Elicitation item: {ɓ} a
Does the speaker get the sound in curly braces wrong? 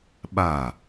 no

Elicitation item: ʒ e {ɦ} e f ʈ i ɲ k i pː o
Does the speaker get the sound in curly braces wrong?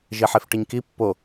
yes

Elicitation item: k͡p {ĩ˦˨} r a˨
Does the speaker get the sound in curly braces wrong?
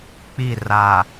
yes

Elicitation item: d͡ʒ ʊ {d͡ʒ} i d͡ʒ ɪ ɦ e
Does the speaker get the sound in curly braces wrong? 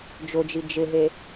no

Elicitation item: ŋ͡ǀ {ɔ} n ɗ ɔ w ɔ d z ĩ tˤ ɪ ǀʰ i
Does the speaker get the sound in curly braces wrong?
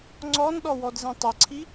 no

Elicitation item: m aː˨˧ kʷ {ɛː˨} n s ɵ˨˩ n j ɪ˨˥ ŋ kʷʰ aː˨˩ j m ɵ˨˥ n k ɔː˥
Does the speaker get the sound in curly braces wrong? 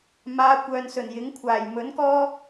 yes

